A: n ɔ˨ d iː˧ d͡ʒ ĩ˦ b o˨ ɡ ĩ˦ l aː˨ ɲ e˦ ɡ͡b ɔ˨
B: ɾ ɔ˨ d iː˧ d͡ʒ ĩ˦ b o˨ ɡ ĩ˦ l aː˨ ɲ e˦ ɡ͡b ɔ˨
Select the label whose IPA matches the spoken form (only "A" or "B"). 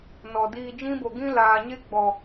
A